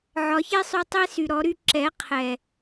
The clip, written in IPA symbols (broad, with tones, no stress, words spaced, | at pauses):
ʕɒ˨˦çe˦sˤy˧tˤe˦ sy˨ɾɔ˨˦ɾy˦ ǁɛ˨˦ qʰɛ˨